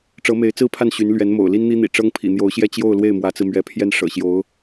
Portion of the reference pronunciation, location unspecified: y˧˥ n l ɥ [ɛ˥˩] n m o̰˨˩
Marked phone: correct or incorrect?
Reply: incorrect